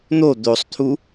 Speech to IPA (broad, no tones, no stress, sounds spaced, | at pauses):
n̪ o d̪ o sˤ t̪ʰ u